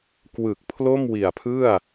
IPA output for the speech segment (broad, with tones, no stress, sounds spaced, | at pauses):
k w ɯ˨˩ k̚ pʰ l o˥˩ m w i˨˩ a̯ pʰ ɯ˥˩ a̯